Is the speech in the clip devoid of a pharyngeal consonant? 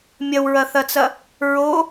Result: yes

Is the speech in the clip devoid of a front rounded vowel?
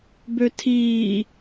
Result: no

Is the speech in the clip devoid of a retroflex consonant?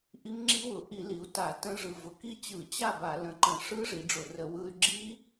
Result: no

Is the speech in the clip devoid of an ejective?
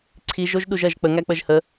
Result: yes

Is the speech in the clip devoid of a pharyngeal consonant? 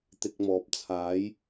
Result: yes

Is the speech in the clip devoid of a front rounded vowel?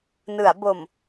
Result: yes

